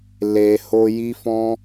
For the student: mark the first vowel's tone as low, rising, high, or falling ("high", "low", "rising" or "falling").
low